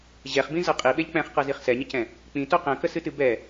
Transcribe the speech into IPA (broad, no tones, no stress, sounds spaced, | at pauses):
ʑ ɛ χ b ĩ z ɤ qʼ i ɓ e ʎ k͡p ɛ̃ χ q ɤ z i χ s ɛ ɲ ə c ɛ̃ | k͡p ĩ t o q ɛ̃ k ə s ɨ t ɨ b ɛ